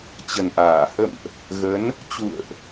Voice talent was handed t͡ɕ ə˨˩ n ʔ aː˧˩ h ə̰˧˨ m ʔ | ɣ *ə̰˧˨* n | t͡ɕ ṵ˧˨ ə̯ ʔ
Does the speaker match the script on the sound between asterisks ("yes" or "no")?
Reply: no